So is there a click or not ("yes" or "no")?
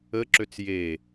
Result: yes